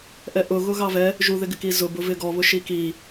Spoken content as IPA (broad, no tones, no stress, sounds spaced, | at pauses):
ʔ ɛ ʔ ʊ ɣ ʊ ɣ ɑ v ɛ | ʒ u ð ɪ ɡ ɪ k i z ʊ b ʊ v ɪ ɡ ɔ β ʊ ʃ i k i